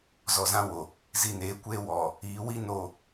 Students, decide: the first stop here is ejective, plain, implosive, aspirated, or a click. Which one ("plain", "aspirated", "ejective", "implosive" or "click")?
plain